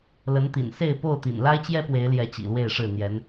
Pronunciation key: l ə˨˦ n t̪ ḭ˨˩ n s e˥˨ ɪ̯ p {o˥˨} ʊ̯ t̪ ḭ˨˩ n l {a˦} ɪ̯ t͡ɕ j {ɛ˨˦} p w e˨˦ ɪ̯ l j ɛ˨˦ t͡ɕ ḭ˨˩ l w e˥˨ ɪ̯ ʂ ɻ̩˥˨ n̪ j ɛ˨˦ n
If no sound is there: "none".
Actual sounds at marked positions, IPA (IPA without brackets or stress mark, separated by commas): o˥˨, a˦, ɛ˦